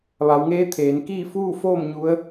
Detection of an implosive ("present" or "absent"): absent